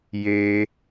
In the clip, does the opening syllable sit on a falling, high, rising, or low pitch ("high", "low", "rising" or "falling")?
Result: low